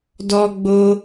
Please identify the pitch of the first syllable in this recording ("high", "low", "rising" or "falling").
high